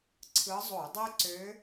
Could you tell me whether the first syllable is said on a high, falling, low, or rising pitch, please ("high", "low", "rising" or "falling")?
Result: rising